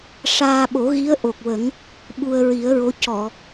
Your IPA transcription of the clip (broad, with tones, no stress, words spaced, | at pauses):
ʂaː˧ ɓo˨˩˦ɣi˧˥ə̯ʔo˨˩k̚wə˨˩˦ŋ | ɓu˧ə̯ ɹi˨˩˦ə̯ɹo˧˥ cɔ˨˩˨